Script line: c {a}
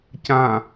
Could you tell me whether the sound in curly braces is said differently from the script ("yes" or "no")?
yes